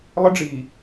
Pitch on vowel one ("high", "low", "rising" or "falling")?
high